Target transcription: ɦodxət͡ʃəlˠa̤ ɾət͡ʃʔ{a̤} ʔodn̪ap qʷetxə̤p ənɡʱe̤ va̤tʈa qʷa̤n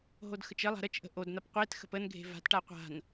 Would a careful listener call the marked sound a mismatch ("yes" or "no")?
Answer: yes